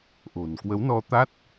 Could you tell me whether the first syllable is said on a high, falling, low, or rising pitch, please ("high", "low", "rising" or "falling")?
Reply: low